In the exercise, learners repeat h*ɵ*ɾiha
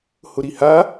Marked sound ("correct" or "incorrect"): incorrect